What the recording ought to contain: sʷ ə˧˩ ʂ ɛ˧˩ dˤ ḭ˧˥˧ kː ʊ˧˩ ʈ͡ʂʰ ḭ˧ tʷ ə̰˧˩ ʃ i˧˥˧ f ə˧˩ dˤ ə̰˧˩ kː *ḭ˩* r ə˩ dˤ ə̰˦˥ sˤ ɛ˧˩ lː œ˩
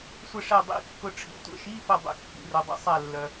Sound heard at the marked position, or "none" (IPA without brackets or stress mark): ḭ˩